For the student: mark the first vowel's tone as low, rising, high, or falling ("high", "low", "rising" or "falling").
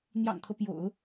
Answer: low